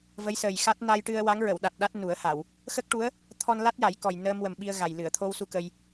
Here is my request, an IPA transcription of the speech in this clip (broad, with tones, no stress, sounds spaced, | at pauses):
v ə˧˥ j s əː˨˩ j x a˦˥ t̚ n a˧ j ʈ ɨ˧ ə̯ w a˧˥ ŋ ɹ ə˨˩˨ w ɗ a˨˩ t̚ ɗ a˦˥ t̚ n u˨˩˦ ə̯ h a˨˩˨ w | x ə˦˥ k̚ ʈ u˧˥ ə̯ | t̪ʰ ɔ˧ n l a˦˥ t̚ j a˨˩˦ j k ɔ˨˩ j n əː˧ m w ə˨˩ m ɓ i˧ ə̯ ɣ a˨˩ j l ɨ˨˩˨ ə̯ t̪ʰ o˧ w s u˧ k ə˧ j